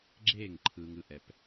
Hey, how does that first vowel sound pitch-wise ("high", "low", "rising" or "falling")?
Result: falling